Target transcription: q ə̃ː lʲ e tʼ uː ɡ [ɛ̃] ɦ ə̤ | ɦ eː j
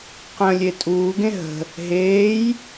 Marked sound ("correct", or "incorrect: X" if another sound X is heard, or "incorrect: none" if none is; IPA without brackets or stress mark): incorrect: ẽ